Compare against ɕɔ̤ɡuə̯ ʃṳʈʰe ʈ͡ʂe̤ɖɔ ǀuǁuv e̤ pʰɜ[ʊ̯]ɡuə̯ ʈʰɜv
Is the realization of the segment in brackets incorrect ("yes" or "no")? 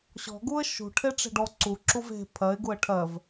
yes